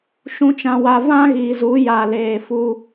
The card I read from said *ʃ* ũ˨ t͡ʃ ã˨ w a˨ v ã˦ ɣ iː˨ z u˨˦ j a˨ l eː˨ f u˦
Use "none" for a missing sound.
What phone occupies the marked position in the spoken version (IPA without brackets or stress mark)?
ʃ